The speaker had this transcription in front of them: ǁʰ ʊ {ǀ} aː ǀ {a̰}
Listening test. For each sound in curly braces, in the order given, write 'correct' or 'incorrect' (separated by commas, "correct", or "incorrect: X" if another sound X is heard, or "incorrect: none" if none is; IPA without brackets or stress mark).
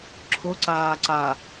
correct, incorrect: a